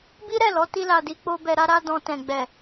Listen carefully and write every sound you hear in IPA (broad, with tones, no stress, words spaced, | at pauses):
bi˦ɾɛ˦˨lɔ˨˦ ti˧la˨di˧ k͡po˦bɛ˧ ɾa˦ɾa˦dɔ̃˧tɛ̃˨ ɡ͡bɛ˨